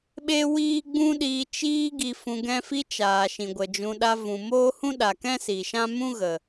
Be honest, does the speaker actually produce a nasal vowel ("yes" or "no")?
yes